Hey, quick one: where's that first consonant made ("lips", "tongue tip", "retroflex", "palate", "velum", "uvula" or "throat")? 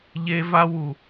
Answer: palate